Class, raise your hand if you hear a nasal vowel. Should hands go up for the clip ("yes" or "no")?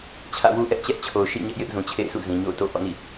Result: yes